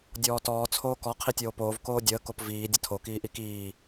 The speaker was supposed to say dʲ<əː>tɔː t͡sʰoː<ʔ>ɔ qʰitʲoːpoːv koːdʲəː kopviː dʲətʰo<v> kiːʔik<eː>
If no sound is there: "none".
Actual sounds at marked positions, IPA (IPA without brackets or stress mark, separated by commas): ɔː, k, none, iː